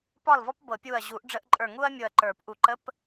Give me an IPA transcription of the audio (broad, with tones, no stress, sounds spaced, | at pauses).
p ɒ˥˨ l v ɔ˥ p b ɤ˨˩˦ pʲ u˧˩ ɐ̯ ʑ u˨˩˦ ʔ ɖ͡ʐ ə˧˥˧ ʔ ǃʼ ə˞˧˩ ŋ u˥ ɐ̯ mʲ ʊ˧˩ ɐ̯ ǃ ə˞˨˩˦ p ʔ u˨˩˦ ǃ ə˧˥˧ p